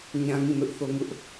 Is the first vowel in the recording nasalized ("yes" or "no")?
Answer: yes